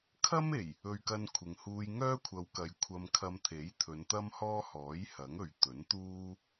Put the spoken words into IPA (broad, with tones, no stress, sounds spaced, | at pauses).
kʰ ɐ˥ m e˨˩ j | ɵ˧ ɥ k ɐ˧ n kʷʰ ɪ˨ ŋ h uː˧ j ŋ œː˥ kʷʰ ɐ˨˧ w k ɐ˨ j kʷʰ ɐ˧ m kʰ ɐ˧ m t̪ʰ e˨˥ j t̪ʰ ɵ˨˧ n t̪ ɐ˥ m h ɔː˥ h ɔː˨˥ j h ɐ˨˥ ŋ ɵ˨ ɥ t̪ ɵ˨˥ n t̪ uː˥